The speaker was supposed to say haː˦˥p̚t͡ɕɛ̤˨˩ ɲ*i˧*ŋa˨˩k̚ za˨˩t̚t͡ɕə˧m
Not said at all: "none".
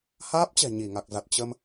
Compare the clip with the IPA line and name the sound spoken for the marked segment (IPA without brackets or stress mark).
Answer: i˧˩